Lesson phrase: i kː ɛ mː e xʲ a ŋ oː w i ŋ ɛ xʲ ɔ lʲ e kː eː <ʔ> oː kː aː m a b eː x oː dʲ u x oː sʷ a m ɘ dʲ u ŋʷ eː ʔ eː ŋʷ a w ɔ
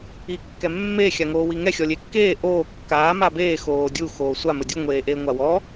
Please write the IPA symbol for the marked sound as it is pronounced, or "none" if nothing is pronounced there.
ʔ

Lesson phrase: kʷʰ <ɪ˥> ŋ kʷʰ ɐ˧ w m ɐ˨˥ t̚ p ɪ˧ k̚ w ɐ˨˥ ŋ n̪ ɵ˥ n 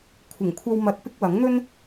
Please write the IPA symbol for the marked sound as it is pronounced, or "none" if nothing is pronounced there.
ɪ˨˩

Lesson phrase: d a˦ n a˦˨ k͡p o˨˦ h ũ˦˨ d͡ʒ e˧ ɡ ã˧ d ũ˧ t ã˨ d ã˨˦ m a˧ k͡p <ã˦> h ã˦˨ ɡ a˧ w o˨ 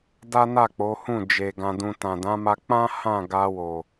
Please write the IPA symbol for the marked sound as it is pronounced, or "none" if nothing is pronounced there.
ã˦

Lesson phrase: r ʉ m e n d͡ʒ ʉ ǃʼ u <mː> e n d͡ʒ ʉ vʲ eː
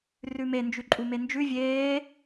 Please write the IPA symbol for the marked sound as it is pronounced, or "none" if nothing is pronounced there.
m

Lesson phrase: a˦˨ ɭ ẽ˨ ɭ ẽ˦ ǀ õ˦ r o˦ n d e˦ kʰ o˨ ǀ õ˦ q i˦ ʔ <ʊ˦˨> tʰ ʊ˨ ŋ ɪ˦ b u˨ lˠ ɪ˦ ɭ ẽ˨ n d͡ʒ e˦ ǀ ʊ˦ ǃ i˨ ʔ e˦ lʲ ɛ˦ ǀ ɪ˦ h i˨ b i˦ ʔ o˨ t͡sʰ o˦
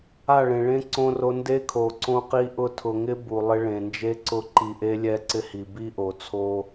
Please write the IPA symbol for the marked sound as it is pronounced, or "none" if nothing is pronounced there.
ʊ˦˨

